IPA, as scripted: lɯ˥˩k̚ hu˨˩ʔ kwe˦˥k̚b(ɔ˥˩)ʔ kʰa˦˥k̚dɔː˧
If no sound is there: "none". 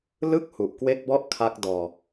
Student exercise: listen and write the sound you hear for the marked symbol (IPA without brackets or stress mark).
ɔ˥˩